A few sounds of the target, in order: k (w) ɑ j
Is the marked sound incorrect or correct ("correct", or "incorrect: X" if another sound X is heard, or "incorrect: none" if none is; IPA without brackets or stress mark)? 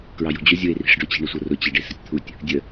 incorrect: ɹ